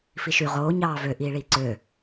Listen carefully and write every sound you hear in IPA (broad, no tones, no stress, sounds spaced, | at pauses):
f i ʃ y ʁ oː ɲ ɑː v ø ʔ iː ɭ iː ǀ ø